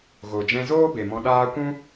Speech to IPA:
ɣ o˨ d͡ʒ ɛ̃˧ z oː˦ b e˨ m ɔ̃˧ ɗ aː˦ kʷ ũ˦

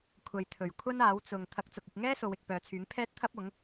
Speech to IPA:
kʷʰ ɐ˨ j t̪ʰ ɵ˨˩ ɥ kʷʰ ɐ˥ n aː˨˥ w t͡s ʊ˨ ŋ t̪ʰ ɐ˨˥ k̚ t͡s ʊ˨ k̚ ɪ˧ k̚ ŋ ɛː˥ s o˨˧ w ɪ˨ k̚ p œː˨˧ t͡sʰ yː˨˥ ŋ pʰ ɛː˥ t̚ t̪ʰ ɐ˥ p̚ ʊ˨˥ ŋ

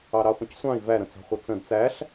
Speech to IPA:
ɑ ɾ ɑ χʷ ə̃ c sʷ ɑ̃ i̯ v æ ɾ ə̃ t͡s ɑ̤ χʷ ʌ t͡s ə̃ d t͡s æ ɬ

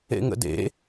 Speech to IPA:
ḛ ŋ ə̰ d ḛ

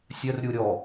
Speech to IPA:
sʲ œ r ɾʲ u ɾʲ ɔ

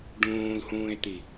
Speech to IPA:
ɖ ũː l h ũː e̯ t̪ i

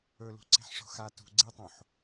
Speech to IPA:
ɵ l ṳ ǀ e̤ ħ ʂ o̤ x a t ṳ ɡ͡ǀ i tˤ õ ħ

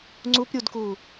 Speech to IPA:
ŋ͡ǀ u p ɾʲ u d k uː

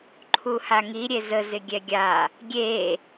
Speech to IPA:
ǃʰ u h a ŋ i ɾʲ e z ə z ɪ ɡʲ ɛ ɡʲ a | ɡʲ e

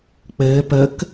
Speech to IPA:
k͡p ɘː p ə k

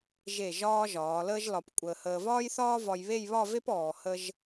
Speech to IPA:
ʒ e˧˩ ʒ ɒː˧ ʒ ɒː˩˧ l əː˥ ʒ l ɒ˧ p kʷʼ əː˧ h əː˧ v ɒː˥ j θ ɒː˥ v ɒ˧ j β e˥˧ j β ɒ˥˧ v e˥ p ɔː˧ h ə˥ ʒ

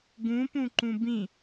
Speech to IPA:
ɡ ũ p ũ ǃ ũ b ĩ

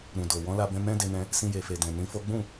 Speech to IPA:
ɾ ũ˨ d o˨ w ɔ̃˨˦ l a˧ b ɛ̃˧ m ɛ̃˦ d e˧ n ɛ̃˧ | s ĩ˧ j e˨ f e˨ d ɛ̃˨ n ĩ˨˦ f o˦ ɡ͡b ũ˦˨

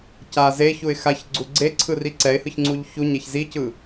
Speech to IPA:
c a z e ç u ɪ̯ x a ç ɡ͡ǀ u ɡ͡ǀ e ǀʰ ɯ r i ǀ ɛ ɪ̯ h ɯ ç ŋ͡ǀ u ʎ ç u ɲ ɛ ç z i c ɯ

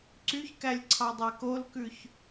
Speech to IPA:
ǀ y ç k æ lʲ ǀʰ ɑ dˤ æ k o l k ʉ ç

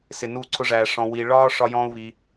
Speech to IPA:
s ɪ˨ n u˦˨ ǀʰ ʊ˦ ʐ æ˧ ʂ ɔ̃˧ w i˧ ɭ ɒː˦ ʂ ɒ˦ j ɔ̃ː˦ u̯ β i˧

